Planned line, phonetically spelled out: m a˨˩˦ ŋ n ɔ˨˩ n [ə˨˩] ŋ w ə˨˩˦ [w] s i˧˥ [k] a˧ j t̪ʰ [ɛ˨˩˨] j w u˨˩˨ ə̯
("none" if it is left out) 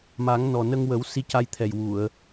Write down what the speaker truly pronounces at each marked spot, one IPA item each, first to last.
ə˧, w, c, ɛ˨˩

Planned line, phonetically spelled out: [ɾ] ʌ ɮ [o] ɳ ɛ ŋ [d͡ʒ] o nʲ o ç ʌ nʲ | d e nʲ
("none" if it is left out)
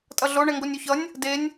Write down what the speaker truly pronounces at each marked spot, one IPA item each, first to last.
tʼ, o, ɡ

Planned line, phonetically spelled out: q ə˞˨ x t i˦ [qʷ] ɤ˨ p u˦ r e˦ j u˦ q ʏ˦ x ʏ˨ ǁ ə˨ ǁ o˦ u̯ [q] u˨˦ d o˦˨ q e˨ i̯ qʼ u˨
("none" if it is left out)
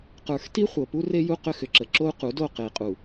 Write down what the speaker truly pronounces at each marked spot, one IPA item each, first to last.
χʷ, q

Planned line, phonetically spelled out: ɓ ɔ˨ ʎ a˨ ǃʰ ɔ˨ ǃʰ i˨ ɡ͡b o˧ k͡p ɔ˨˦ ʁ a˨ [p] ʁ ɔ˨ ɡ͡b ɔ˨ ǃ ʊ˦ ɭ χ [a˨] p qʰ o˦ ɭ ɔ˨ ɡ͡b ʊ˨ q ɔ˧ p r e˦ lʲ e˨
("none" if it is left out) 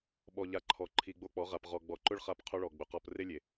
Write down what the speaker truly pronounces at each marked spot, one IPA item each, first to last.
p, a˧

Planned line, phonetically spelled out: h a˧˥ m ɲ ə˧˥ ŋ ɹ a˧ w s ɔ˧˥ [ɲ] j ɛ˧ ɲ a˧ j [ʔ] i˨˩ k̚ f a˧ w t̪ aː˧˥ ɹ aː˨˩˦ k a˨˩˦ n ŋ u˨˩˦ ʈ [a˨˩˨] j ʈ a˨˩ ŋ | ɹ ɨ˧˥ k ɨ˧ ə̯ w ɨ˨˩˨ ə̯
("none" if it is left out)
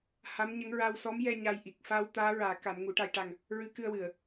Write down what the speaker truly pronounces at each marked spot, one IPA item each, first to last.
m, ʔ, a˧

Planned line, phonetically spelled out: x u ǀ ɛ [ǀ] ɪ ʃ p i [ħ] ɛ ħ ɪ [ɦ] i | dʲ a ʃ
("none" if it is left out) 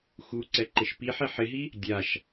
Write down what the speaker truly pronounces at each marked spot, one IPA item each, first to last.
ǃ, ħ, ɦ

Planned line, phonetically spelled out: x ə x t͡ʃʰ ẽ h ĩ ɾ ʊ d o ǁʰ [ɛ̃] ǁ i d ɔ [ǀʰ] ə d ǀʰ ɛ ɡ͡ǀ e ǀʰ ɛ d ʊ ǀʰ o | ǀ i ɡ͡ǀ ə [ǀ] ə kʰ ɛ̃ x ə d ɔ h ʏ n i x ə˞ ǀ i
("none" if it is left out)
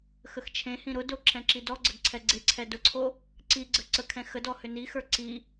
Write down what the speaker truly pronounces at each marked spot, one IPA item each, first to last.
ɛ̃, ɡ͡ǀ, ǀ

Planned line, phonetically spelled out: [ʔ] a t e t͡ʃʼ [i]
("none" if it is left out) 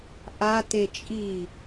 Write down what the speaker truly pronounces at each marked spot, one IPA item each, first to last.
ʔ, i

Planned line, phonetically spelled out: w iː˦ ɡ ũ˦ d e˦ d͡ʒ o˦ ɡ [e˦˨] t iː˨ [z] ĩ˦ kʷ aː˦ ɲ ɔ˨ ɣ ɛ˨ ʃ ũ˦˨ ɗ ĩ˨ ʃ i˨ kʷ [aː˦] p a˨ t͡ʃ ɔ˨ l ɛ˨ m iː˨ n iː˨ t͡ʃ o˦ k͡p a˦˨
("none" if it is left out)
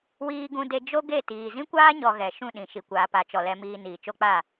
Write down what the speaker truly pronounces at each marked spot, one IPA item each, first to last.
e˦˨, z, aː˨

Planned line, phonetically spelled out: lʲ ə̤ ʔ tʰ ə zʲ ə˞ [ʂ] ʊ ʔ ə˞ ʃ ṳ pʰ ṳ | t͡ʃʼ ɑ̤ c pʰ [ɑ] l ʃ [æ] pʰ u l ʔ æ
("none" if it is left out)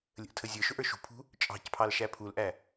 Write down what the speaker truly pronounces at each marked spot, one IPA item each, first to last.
ʃ, ɑ, æ

